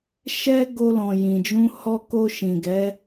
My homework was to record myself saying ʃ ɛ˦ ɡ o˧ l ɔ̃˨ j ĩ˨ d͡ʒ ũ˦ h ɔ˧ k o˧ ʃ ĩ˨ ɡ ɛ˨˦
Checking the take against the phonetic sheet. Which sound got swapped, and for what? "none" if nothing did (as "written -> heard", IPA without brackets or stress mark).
ũ˦ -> ũ˧